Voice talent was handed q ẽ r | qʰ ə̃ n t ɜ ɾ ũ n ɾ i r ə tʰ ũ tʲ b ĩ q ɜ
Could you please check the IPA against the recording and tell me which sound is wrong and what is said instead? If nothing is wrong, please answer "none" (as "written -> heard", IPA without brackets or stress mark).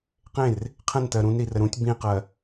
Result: tʰ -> ɾ